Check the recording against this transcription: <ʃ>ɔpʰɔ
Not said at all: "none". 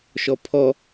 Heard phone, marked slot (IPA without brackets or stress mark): ʃ